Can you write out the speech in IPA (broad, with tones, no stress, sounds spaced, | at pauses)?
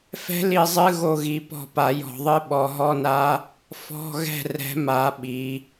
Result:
f ɛ̤˦˥ l i˦˨ zˤ ɨ˧˥˧ ɣ o˦˨ ɣ i˨˦ p ɔ̤˦˨ p a˨˩˦ j ɔ̤˨˩˦ ðˤ ɨ˧˥˧ ɓ ɔ˨˦ ɦ ɔ˧˥˧ n a˦˥ | f ɔ̤˧˥˧ ɣ ɛ̤˦˨ r ɛ̤˨˦ m a˨˩˦ ɓ i˨˦